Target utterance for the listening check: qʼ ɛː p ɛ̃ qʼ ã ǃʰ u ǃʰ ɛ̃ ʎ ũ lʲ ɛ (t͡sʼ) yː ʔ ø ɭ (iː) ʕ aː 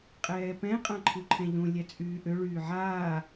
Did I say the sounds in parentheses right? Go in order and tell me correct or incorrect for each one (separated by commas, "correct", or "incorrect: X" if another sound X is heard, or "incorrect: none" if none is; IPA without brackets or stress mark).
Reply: correct, incorrect: yː